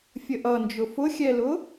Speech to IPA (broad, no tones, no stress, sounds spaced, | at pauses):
fʲ ə ʔ ʌ n d͡ʒ ʊ f ʊ xʲ ɛ l ʊ